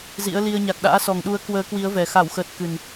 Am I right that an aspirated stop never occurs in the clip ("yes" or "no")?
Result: yes